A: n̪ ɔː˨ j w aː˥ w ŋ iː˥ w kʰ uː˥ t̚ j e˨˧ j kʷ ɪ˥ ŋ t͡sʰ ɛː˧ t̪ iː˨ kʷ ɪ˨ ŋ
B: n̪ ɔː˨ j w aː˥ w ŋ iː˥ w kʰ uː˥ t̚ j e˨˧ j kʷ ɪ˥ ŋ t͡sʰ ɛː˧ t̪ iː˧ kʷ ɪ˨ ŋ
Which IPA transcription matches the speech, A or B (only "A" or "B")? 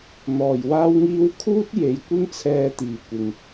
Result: A